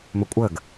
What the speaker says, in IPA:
mɵkʷʼəɡ

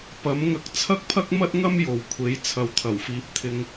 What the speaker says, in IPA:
pɐ˨˥mŋɐ˧k̚ t͡sʰɐ˥k̚pʰɐ˥k̚mɐ˥t̚ ŋɐ˥mjo˨wkʷʰe˨˥j t͡sʰɐ˨wt̪ʰɐ˨˩wfiː˨˥p̚ t̪ʰɪ˧ŋ

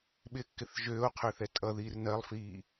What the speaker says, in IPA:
ɓɪkːɪθ ʒøːo̯qʰøθɛ tʼʌðiːr nɜlˠfiː

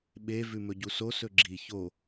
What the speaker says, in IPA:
ɓe vʉmɵɟuso sɵɡ͡ǁi ço

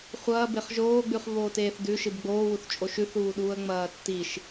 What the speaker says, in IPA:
χʷɐːbeχ ʒoːɡ͡bʉχ βoːteːθdʉ ʃɨbɡ͡boːwuθt͡ʃʼoʃ ʉθuːɗuːə̯ ŋ͡mɐːtːiʃ

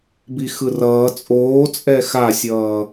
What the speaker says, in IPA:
bixɯrʌː t͡sʼoː t͡sʼɛxasʲʌː

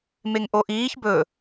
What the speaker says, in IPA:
meŋʔoʔiːç bɵ

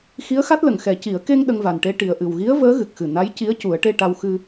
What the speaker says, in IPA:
xi˧˥ə̯xa˦˥t̚lə˨˩˨ŋ xɛ˨˩˦ ci˨˩˦ə̯ ke˧ŋ ɗə˧ŋva˨˩nʈe˧ ʈi˨˩ə̯ʔɨ˨˩wɣi˧˥ə̯ vəː˧˥ɣɨ˨˩k̚xɨ˨˩ na˧˥jci˧˥ə̯ cu˨˩˦ə̯ʈe˧ʈa˧w xɨ˧

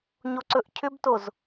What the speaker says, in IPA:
ɲoǀɵʔcʰʏbtoz

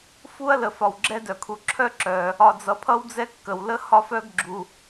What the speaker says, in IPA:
fu˦ɐ̯lə˩ fɒ˩wɡ͡ǁɛ˦dœ˩kʰu˩ ǁʰœ˦ǁœ˩ | ɒ˨d͡zʌ˨pʰʌ˥wd͡zɛ˥ kːə˩wlə˥ hɒ˥fœ˥ɡ ɡ͡ǁu˨

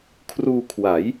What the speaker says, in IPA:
kʰruː˧kʰwa˩˦j

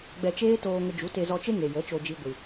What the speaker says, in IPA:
ɡ͡bɛ˧t͡ʃeː˦toː˧ŋə˧ d͡ʒu˨˦te˧zɔ˧t͡ʃe˦ ŋe˨jə˨˦t͡ʃo˧d͡ʒi˧ ɡʷɨ˨

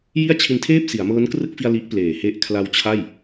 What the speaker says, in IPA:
ji˥˩a̯t͡ɕʰi˧ntʰeː˥˩p̚ si˩˦a̯mɤː˦˥nkrɯ˥˩k̚fi˧a̯ li˦˥ʔpleː˨˩he˦˥ʔ kʰla˧wt͡ɕʰa˥˩j

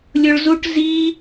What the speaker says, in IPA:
lʲoɭzuʈ zi

